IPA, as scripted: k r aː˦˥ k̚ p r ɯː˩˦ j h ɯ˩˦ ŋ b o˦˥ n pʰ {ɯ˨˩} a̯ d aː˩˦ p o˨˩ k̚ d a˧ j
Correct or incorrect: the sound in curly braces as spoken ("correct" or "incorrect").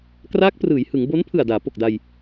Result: correct